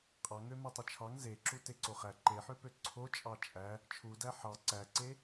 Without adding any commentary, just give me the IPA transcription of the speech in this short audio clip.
qʼ ɑ ŋ ø m e tˤ o t͡ʃʰ ɑ ŋ z e ǁ u t e ǀ o χ æ ǃ e ħ ø p ø ǀʰ o t͡ʃʼ ɑ t͡ʃʼ æ | t͡ʃʰ u d æ ħ ɑ ǀ æ ǀ e

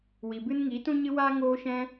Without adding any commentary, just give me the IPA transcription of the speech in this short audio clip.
w i˨ b ɨ˦ n ŋ iː˨˦ t ũ˦ ɲ ɨ˦ w aː˦ ŋ oː˦ ʃ ɛ̃˦

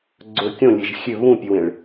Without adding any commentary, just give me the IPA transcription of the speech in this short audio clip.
ɡ͡ǀ ɵ kʲ õ lʲ e ʒ xʲ ø β ũ pʲ œ w ẽ ɭ

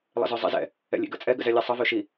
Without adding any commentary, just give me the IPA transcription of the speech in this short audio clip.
lˠ ə̰ z ø zˤ ḭ z ɛ̰ | ɛ̰ lʲ ḭ ɡ ə̰ t͡sʼ ɛ ɡ ə̰ z ɛ lʲ ɛ sˤ ə v ø ʃ i

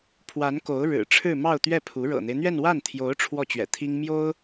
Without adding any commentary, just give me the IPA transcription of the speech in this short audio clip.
pʰ w a˧˥ n k o˧˥ ʊ̯ ɻ ɻ̩˨˩ ʈ͡ʂʰ ɻ̩˥˧ m ɑ˥˧ ʊ̯ t̪ ɥ ɛ˥˩ pʰ u˧˥ ɻ ɤ̰˨˩ n̪ e˦ ɪ̯ n̪ ɥ ɛ˥˧ n w a˥˩ n t̪ʰ j o˧˥ ʊ̯ ʈ͡ʂʰ w ɔ˥˩ t͡ɕ ɥ ɛ̰˨˩ t̪ʰ i˥ ŋ m j o˥ ʊ̯

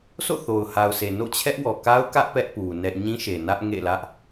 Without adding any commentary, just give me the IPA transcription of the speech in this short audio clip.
sʰ o̰˦˨ θ o˨ ʊ̯ h a˨ ʊ̯ sʰ e˨ n o̰˦˨ t͡ɕʰ ɛ˦ ʔ w ɔ˨ k a˦ ʊ̯ k ä˦ ʔ p ɛ˦ ʔ p u˨ n ɛ˦ ʔ ɲ ĩ˦ ʃ e˨ n ä˦ ʔ ŋ ḛ˦˨ l ä˦ ʔ

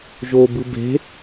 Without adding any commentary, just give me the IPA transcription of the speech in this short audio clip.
ʒ o b ɯ b e̤

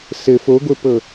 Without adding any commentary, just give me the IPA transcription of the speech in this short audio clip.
s ɘ f o ɡʷ ɘ p ɤ

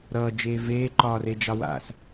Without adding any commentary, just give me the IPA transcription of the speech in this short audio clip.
ɾ ʌː d͡ʒ eː v eː ǃ ɒː r e d͡ʒ ɑ w a̰ s

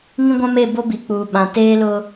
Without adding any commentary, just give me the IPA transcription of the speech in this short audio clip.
ŋ ĩ˦ ɡʷ ã˦ m e˦˨ b o˦ b i˨ k͡p uː˨ ɓ ã˨ t eː˦ l ʊ˦

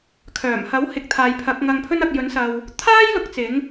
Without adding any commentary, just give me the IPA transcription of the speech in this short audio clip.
kʰ œː˨˩ m h ɐ˨˥ w h ɪ˨ k̚ t̪ʰ aː˨ j pʰ ɐ˨˥ k̚ ŋ ɐ˧ ŋ pʰ ɵ˥ n ɐ˧ k̚ j ɵ˨˥ n s ɐ˨ w | t̪ʰ aː˥ j l ʊ˧ k̚ t͡s ɪ˨˥ ŋ

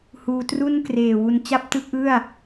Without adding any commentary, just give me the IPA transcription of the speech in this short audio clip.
h uː˧ t r u˥˩ n k r eː˨˩ w u˨˩ n t͡ɕ a˥˩ p̚ t ɯ˦˥ k̚ ʔ ɯ˥˩ a̯

